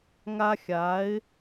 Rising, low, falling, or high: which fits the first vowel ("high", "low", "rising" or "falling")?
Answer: high